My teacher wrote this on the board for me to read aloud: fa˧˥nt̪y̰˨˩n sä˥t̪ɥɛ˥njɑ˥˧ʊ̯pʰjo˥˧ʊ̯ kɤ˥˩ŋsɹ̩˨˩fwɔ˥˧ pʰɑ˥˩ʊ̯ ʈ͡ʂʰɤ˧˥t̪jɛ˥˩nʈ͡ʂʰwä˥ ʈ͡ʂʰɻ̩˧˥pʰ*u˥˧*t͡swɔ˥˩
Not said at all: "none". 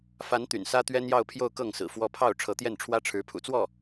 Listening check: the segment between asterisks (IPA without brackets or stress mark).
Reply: ṵ˨˩